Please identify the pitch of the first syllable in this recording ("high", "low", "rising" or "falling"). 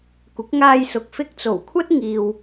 rising